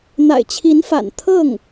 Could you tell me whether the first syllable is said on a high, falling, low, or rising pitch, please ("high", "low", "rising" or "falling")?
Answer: low